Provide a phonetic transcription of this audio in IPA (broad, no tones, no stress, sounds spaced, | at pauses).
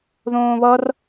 ð õː β ʌ r